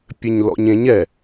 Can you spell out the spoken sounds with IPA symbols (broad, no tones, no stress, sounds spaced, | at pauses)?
pʲ ɘ ɲ l ɔ̰ ɲ ẽ ɲ ɛ